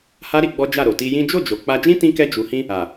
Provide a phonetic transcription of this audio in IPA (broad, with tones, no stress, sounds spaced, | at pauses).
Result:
h a˦ ɾ i˧ ɡ͡b ɔ˦ d͡ʒ a˦˨ ɾ o˨ t i˧ j ĩ˦ d͡ʒ o˦˨ d͡ʒ o˨ k͡p a˧ d͡ʒ ĩ˦ t ĩ˦ k ɛ˦ d͡ʒ u˧ h ĩ˦ | a˨